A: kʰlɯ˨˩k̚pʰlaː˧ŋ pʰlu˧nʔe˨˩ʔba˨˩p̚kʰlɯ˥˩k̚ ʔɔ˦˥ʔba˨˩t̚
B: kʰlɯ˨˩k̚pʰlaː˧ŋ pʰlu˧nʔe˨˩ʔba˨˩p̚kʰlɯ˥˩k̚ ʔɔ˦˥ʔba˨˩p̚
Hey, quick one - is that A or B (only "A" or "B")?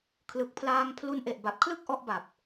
B